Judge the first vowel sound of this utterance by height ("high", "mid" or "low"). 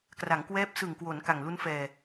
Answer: low